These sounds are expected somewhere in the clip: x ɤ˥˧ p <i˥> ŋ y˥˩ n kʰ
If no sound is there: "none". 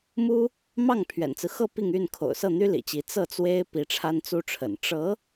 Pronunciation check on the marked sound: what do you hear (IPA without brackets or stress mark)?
i˥˧